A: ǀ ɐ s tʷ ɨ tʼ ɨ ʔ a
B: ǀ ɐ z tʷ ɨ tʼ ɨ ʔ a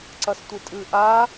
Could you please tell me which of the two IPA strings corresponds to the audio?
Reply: A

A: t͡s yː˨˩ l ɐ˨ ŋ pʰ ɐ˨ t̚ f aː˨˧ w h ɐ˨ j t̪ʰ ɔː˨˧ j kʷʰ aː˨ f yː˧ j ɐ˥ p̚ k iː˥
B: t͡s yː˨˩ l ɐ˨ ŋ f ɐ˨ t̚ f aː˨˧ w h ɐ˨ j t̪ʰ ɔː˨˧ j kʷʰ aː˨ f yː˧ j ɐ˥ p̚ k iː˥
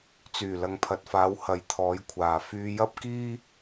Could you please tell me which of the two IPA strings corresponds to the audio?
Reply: A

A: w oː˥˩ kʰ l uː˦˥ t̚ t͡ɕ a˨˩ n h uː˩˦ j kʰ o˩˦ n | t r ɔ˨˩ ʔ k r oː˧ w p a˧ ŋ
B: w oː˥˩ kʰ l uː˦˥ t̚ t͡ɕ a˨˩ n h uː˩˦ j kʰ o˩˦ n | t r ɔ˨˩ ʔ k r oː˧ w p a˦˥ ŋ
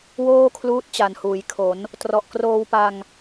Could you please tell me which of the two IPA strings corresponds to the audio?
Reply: A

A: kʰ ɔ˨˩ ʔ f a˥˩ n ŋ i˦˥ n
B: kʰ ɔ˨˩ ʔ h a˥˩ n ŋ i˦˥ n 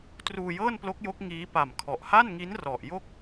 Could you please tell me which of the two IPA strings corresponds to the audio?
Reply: B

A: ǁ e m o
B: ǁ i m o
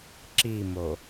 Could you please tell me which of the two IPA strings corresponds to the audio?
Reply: B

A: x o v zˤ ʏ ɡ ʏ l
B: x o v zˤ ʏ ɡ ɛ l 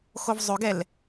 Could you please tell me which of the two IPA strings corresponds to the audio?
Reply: B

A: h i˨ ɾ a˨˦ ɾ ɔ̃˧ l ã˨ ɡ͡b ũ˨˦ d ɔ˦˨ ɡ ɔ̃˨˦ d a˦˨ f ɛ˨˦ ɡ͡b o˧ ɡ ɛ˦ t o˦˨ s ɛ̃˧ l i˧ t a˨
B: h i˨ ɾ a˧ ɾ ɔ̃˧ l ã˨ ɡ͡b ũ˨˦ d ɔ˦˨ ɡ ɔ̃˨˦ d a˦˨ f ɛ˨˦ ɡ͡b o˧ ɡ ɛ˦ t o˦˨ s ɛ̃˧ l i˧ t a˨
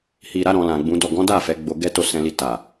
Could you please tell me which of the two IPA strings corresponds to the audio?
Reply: A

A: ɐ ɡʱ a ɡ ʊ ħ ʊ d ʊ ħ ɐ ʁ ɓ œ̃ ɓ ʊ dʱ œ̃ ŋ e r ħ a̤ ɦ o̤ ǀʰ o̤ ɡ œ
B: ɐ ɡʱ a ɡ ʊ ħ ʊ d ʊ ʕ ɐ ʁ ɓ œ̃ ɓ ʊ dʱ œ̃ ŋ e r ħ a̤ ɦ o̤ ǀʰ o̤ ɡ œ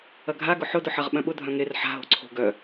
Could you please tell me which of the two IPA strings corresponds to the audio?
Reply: A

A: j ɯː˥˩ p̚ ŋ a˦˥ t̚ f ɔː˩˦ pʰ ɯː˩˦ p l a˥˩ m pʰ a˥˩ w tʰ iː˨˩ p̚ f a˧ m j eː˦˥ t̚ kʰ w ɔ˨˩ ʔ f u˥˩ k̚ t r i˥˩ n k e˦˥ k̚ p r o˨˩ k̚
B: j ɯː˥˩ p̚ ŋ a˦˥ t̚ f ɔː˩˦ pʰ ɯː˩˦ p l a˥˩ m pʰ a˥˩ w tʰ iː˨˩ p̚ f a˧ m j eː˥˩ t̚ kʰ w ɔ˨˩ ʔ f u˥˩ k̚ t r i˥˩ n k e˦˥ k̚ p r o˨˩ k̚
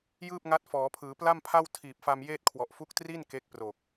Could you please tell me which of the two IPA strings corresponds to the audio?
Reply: B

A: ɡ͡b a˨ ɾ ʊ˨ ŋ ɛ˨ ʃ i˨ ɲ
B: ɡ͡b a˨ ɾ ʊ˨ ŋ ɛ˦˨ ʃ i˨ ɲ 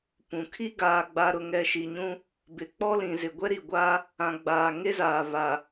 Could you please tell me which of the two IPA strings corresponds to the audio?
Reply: A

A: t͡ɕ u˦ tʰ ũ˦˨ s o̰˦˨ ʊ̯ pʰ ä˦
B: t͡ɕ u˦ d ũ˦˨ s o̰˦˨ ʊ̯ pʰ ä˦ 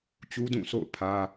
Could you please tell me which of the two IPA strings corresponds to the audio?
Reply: B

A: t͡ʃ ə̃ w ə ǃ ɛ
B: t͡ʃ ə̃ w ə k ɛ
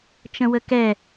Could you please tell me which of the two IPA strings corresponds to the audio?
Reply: B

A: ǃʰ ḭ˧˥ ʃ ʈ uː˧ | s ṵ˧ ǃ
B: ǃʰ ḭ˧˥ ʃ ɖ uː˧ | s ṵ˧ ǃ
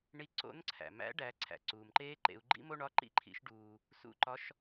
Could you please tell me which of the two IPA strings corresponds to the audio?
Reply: B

